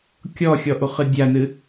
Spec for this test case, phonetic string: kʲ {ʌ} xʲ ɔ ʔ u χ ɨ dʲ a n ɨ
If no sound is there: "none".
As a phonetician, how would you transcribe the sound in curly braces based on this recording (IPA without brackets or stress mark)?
ɔ